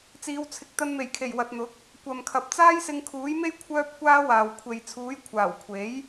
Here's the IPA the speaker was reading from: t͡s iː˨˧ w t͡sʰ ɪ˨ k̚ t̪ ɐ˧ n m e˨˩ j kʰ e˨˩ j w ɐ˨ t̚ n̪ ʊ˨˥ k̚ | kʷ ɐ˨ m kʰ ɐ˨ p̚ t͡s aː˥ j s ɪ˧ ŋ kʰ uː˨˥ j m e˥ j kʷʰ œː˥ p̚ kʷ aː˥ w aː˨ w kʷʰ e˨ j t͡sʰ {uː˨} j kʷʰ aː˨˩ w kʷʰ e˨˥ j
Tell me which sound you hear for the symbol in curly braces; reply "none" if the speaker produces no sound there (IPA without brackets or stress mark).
uː˨˥